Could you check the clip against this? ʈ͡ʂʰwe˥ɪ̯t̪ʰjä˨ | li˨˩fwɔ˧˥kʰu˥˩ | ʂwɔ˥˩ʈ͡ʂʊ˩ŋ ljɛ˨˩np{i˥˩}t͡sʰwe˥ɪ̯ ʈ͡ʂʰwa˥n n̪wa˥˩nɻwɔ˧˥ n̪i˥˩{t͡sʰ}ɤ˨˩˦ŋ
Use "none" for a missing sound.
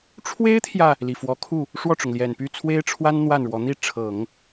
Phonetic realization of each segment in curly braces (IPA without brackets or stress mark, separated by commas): y˥˩, ʈ͡ʂʰ